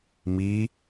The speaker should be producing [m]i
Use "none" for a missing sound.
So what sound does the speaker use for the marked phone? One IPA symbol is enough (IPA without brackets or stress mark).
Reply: m